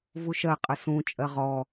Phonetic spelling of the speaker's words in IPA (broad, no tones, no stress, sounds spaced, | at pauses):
v u ʃ ɜ qʼ ə s ũ t͡ʃʼ ɜ ʁ ɔ